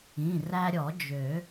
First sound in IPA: ĩ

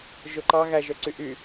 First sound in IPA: ʒ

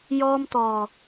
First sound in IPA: j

